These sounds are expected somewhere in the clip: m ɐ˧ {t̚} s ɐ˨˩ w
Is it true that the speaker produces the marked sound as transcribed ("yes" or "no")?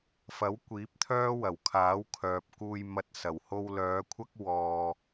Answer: yes